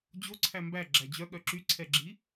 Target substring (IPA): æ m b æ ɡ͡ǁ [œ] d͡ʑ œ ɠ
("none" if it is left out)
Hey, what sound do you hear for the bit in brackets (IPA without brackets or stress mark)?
æ